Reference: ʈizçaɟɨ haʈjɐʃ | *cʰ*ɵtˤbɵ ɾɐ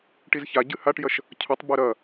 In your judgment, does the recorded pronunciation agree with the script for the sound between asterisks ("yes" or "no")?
yes